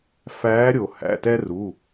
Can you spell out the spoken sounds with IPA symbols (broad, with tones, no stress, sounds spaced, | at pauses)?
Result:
f æː˨˦ ɾʲ o˩ h æ̰˩˧˩ t ɛ˦ r u˩˧˩